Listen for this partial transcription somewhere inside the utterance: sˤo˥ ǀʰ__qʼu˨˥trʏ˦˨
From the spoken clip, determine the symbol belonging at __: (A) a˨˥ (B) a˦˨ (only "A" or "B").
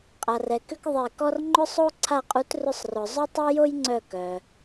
B